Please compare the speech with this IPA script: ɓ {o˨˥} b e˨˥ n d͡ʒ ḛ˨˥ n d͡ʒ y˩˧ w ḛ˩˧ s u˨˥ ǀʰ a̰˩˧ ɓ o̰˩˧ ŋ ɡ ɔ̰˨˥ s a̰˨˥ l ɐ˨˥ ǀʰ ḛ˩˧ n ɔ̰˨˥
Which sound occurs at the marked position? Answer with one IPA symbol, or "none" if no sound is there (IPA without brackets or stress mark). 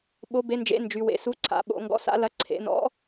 o˨˥